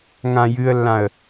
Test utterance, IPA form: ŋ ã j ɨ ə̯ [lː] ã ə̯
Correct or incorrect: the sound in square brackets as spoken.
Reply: correct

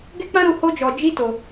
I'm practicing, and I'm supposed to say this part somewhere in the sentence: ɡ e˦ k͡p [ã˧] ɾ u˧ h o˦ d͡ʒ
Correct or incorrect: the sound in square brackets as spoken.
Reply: incorrect: ã˦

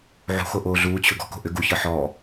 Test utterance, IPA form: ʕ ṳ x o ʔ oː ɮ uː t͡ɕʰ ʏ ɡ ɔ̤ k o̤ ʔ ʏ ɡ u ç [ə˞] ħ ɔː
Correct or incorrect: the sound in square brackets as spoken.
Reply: correct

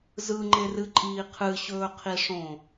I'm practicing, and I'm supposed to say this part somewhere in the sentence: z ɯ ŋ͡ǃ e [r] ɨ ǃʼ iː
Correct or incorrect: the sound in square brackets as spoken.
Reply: correct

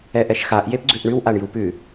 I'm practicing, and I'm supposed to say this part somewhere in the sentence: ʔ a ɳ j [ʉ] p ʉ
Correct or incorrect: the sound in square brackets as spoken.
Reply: incorrect: u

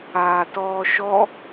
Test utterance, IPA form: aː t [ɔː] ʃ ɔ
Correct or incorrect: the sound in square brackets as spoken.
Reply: correct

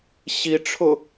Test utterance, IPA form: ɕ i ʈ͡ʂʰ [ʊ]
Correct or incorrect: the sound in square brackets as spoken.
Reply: correct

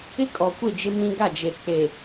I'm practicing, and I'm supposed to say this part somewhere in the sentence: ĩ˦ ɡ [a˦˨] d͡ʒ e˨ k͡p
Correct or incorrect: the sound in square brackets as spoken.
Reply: correct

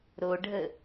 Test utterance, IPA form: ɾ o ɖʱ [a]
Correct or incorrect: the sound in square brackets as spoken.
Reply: incorrect: ə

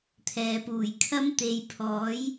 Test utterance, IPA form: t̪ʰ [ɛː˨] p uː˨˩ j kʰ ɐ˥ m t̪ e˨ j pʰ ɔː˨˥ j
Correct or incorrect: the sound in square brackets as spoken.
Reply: correct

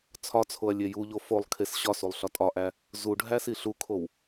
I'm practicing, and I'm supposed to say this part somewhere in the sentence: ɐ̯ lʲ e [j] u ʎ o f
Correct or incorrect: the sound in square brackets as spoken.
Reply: correct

